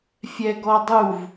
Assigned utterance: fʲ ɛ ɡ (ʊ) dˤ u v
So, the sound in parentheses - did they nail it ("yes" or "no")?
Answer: no